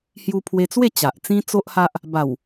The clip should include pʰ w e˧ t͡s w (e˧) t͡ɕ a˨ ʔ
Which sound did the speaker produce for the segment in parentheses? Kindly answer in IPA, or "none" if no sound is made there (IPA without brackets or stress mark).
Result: e˥˧